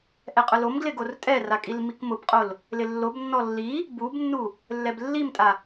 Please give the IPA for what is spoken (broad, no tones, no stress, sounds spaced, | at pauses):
ʔ ɛ qʼ ʊ l o m ɡ l ɪ ɡ o r tʼ ɛ r a kʼ i l m i k m ʊ b qʼ o l | l ɪ lː o b nː ɔ lː i | b u b nː u | lː ɛ b lː i m tʼ a